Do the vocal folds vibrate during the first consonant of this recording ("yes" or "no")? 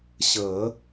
no